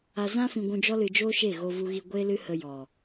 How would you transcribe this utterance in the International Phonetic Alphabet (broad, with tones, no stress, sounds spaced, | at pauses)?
a˧ z ã˦ f ĩ˧ ɡʷ ũ˧ d͡ʒ ɔ˦ l ɨ˧ d͡ʒ oː˦ ʃ e˦˨ ɣ o˧ v u˧ ɣ i˧ ɡʷ eː˦ l ɨ˦ h ə˧ j ɔ˨